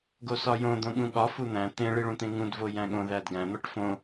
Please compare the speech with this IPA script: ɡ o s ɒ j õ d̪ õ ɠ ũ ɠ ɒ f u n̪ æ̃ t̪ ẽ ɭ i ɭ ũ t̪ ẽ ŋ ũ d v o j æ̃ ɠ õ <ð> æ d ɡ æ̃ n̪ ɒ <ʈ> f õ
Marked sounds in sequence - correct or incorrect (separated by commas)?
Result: correct, correct